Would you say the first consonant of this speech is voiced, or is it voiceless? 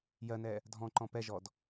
voiced